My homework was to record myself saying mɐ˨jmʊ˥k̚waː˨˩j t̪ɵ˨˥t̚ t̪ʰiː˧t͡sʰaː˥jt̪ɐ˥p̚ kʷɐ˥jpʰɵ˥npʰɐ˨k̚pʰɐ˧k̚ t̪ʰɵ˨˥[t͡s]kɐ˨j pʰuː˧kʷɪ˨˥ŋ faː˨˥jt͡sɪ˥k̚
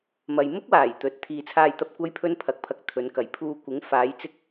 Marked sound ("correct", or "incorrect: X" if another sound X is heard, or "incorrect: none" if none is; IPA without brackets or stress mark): incorrect: n